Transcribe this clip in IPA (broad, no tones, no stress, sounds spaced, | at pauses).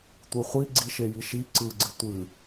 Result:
tʷ ɯ χʷ i ɡ͡ǀ i ʃ e j i ʃ i ǀ ɯ ɡ͡ǀ ɨ tʷ ɨ